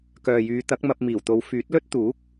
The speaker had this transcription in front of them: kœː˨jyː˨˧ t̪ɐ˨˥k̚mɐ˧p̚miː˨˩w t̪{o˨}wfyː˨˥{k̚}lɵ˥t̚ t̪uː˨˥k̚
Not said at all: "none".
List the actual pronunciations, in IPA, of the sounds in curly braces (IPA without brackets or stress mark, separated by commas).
o˨˧, t̚